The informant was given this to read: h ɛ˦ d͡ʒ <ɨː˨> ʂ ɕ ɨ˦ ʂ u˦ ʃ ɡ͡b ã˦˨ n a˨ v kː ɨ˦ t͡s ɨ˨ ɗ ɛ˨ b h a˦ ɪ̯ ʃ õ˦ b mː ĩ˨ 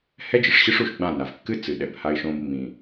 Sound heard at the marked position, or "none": ɨ˨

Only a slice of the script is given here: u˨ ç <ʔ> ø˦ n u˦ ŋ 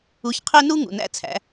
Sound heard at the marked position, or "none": qʰ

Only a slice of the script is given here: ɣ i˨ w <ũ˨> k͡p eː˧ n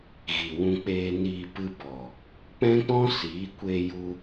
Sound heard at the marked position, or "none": ũ˧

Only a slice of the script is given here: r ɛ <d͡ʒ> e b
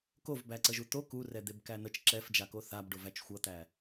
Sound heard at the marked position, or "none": d̪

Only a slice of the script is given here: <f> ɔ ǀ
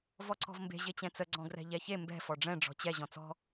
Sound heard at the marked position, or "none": v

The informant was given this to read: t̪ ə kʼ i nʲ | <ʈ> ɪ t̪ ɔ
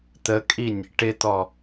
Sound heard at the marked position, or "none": ʈ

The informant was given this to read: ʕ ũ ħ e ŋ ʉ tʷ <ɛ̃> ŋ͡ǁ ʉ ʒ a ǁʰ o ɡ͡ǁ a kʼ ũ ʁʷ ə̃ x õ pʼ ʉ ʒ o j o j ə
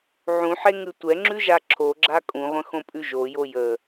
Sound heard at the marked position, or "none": ɛ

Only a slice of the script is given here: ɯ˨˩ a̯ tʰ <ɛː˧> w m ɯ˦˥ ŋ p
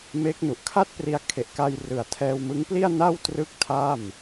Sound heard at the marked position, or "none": ɛː˧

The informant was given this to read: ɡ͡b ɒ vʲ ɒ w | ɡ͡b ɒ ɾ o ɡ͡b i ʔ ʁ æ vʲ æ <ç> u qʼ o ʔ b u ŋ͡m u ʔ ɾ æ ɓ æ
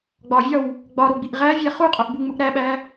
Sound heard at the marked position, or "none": χ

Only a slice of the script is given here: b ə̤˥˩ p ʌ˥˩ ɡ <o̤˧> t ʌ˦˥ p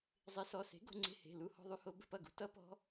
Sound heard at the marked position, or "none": ṳ˧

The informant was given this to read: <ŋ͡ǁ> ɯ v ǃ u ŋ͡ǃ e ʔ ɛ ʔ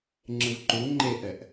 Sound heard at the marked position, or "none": ŋ͡ǁ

